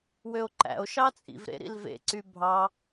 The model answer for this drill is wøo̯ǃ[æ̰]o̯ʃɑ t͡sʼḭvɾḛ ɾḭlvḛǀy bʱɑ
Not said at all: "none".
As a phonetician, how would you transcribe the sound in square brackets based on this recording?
æ̰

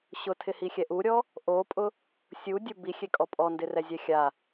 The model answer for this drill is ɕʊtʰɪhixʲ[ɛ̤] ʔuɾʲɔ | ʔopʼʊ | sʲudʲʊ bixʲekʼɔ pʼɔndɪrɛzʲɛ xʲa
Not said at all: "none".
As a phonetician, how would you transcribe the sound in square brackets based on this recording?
ɛ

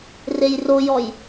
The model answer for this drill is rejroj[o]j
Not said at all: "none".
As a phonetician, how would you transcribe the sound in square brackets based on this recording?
ɔ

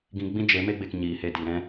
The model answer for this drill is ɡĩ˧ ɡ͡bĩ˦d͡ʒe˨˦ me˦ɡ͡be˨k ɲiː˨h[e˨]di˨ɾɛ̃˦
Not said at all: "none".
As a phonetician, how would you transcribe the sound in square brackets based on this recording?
e˧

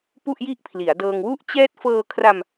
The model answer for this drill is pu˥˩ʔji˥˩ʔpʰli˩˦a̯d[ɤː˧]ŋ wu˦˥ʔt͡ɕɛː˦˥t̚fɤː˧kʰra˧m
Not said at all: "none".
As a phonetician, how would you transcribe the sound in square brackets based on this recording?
ɤː˧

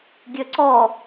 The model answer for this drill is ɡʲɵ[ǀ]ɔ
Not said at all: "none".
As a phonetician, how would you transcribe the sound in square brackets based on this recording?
ǀ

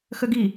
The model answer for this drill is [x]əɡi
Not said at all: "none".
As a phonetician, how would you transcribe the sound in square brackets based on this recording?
x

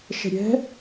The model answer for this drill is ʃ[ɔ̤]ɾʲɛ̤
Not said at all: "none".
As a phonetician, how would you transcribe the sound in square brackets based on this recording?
ə̤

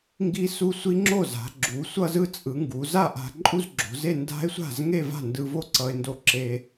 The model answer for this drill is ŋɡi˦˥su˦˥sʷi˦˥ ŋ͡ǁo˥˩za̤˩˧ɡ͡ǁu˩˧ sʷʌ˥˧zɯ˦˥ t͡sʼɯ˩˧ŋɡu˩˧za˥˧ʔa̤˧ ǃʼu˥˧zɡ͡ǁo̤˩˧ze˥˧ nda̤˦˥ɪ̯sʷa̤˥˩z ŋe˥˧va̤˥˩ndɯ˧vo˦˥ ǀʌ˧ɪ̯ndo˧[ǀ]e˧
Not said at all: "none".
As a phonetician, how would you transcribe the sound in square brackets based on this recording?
ǁ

